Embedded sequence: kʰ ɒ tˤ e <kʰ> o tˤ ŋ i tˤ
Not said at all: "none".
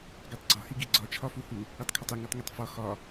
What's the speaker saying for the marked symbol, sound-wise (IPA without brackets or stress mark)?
ŋ